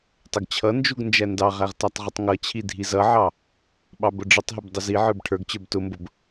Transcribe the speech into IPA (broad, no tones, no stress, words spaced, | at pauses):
tˤəɡt͡ɕʰʌnd͡ʒuɡ nd͡ʒændɑʁæʁ tætˤʁətˤŋʌt͡ɕʰi dʱizʌʕɑ | ɓɑbʊɖ͡ʐətˤɦəb dˤʊziʕə˞b ʈʰə˞ɡt͡ɕə˞b tʊmbʊb